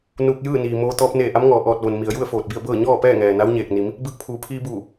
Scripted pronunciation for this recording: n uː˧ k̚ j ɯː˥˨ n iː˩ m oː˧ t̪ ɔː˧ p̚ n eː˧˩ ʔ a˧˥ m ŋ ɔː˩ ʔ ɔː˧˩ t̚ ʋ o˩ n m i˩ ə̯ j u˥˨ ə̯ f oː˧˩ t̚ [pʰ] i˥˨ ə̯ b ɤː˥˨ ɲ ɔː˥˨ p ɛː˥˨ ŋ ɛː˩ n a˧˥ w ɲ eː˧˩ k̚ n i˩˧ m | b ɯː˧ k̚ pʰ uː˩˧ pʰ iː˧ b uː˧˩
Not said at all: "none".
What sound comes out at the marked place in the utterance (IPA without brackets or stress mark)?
b